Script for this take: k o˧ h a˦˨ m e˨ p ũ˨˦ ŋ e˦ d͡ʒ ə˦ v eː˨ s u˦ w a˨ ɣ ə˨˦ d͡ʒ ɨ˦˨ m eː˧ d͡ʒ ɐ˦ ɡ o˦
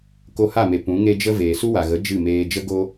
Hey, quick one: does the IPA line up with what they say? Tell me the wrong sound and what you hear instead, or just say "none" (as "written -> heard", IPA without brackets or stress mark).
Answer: ɐ˦ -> ə˦